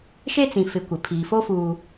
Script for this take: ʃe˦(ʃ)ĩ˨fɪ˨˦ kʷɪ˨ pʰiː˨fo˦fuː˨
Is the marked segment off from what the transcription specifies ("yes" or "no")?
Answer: yes